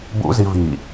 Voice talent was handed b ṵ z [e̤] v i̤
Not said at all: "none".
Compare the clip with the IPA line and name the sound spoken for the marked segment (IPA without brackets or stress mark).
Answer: i̤